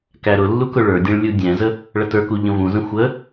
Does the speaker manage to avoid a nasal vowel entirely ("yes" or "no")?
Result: no